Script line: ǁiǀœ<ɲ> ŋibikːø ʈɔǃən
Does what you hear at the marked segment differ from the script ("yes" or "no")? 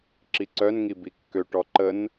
yes